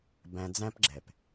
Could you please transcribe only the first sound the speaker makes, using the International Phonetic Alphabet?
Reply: b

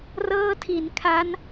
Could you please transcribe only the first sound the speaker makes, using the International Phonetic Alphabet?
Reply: r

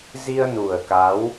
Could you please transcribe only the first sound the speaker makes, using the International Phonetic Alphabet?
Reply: z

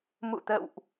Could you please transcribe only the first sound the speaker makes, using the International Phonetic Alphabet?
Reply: m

